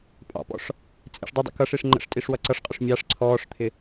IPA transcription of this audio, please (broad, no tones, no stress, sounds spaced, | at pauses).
pʼ ɑ̰ p ɔ̰ ʂ | t͡sʼ ḭ ʂ dˤ ə dˤ ḭ k ʌ ʂ i ʂ ŋ͡ǃ ə̰ ʂ tʼ i ʂ w ʌ ǀ ʌ ʂ qʼ ʊ ʂ mʲ ɑ ʂ ǀʰ ɔː ʂ t̪ʰ ɪ